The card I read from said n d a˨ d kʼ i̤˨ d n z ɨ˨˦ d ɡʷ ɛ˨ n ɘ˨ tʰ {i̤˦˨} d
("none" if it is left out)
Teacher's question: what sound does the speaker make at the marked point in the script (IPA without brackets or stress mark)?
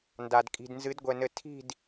i̤˦˨